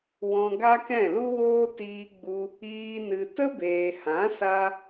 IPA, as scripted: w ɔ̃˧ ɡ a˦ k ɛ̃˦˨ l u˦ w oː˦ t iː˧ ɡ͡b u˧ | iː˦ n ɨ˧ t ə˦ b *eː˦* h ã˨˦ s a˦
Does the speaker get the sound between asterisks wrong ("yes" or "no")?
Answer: yes